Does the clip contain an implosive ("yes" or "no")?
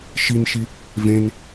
no